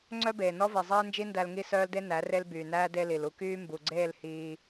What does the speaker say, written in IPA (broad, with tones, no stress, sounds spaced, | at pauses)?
ŋ͡ǀ œ˦ b eː˨ n ɔ˦ v i˨ zˤ eː˦ n d͡ʒ i˦ n d æ˧ l ŋ i˦˨ s œː˦ l d e˦ n æ˨˦ r e˦ l b yː˨ n æː˦ d e˦ l i˨ l u˦ k yː˦ m b u˨ ɡ͡ǀ eː˦˨ l h iː˧